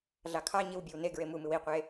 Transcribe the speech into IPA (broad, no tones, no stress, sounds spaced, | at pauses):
ɮ ɑ kʰ ɑ ɲ i w bʲ ɯ w n e ɡ ɹ e m u m ɨ w i qʷ e